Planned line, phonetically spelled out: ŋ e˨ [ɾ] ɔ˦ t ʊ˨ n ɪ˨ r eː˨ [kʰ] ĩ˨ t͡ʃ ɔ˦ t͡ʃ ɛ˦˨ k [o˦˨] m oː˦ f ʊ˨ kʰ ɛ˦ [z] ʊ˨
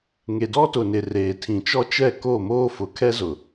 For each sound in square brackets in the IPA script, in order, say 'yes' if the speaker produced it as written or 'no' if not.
no, no, yes, yes

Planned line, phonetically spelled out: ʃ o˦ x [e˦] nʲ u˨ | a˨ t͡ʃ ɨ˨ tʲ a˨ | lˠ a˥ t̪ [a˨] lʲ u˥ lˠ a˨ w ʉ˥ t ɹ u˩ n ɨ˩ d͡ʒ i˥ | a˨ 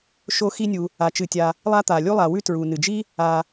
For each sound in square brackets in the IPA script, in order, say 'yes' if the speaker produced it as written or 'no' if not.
no, yes

